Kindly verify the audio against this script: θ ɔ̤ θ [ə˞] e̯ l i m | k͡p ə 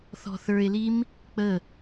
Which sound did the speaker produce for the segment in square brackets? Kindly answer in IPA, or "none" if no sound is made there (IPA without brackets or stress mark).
ə˞